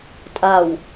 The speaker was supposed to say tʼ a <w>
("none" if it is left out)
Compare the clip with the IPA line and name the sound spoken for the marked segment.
w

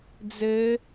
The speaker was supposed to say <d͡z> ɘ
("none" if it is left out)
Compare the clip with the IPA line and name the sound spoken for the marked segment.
d͡z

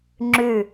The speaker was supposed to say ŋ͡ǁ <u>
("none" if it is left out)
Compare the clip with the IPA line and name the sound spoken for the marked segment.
ʉ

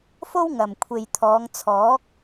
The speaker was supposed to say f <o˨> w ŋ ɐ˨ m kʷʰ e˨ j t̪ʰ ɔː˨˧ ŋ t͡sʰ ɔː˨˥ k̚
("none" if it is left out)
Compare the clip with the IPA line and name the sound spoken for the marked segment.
o˥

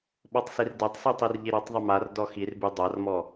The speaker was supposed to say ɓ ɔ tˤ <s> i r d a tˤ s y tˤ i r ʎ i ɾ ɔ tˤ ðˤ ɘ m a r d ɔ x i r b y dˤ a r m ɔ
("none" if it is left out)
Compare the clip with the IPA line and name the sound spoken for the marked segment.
s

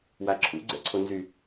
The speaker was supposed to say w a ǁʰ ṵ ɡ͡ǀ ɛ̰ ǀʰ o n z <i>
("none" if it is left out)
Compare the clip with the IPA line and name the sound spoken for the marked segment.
y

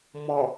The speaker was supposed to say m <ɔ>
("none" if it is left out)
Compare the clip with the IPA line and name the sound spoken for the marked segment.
ɔ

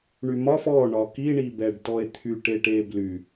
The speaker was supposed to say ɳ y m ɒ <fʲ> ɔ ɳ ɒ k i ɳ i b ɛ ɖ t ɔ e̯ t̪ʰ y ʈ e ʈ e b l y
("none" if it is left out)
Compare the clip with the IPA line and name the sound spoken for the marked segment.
f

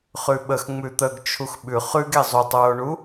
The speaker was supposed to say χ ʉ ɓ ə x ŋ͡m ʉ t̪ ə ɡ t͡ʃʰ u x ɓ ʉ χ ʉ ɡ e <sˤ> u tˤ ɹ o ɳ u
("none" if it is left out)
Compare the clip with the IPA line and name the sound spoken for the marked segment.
zˤ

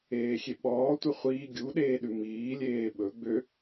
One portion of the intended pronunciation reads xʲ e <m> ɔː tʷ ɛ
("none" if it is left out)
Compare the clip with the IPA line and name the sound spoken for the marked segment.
ɓ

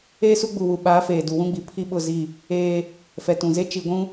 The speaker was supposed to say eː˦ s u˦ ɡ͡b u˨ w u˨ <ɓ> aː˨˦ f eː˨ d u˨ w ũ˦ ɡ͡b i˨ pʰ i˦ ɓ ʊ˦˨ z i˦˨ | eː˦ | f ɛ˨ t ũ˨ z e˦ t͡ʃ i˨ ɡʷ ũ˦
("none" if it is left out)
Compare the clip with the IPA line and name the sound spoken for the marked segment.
ɓ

